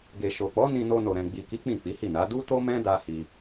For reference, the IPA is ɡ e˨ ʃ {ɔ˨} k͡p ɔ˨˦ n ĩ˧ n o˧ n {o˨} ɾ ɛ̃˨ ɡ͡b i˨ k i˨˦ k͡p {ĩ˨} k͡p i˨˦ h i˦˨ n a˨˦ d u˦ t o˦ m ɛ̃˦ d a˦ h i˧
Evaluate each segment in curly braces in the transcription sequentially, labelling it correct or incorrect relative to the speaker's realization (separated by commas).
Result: incorrect, correct, incorrect